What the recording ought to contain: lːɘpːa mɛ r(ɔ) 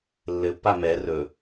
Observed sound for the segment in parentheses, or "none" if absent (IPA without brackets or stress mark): ɵ